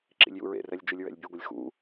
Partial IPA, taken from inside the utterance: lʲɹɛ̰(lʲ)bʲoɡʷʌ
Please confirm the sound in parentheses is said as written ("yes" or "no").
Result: yes